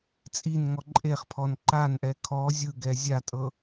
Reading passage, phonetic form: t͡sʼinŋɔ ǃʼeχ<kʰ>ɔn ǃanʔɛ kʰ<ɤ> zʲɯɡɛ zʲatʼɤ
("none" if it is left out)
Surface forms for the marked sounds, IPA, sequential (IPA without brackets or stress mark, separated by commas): pʰ, ɔ